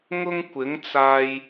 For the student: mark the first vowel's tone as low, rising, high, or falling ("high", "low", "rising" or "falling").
high